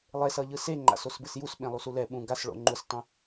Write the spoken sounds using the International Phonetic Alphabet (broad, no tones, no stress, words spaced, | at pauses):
lˠesʌʎɯ seŋ͡ǃa̰s osbɯsjusɓẽ lˠusulɛ ɓũ ɡasɭo̰ ŋ͡ǃustˤũ